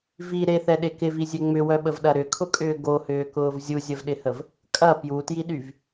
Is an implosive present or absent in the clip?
present